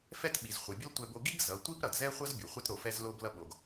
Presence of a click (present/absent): absent